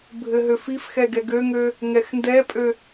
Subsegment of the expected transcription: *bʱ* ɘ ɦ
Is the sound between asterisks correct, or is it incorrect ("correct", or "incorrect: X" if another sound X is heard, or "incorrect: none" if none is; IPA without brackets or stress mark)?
correct